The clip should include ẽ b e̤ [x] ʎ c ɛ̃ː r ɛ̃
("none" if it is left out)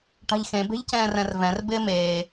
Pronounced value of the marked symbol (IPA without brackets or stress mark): none